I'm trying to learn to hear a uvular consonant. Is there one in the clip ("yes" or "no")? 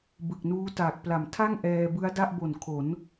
no